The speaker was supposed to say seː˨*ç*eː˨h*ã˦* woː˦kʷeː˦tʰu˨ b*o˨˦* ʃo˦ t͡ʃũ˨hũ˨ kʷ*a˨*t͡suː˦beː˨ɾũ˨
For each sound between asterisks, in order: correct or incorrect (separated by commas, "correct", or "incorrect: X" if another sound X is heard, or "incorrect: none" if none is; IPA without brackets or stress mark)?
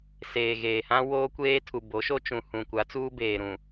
incorrect: ɣ, correct, correct, incorrect: a˨˦